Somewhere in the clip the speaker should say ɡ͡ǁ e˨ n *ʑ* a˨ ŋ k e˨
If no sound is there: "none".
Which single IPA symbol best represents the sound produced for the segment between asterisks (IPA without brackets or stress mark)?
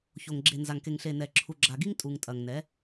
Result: z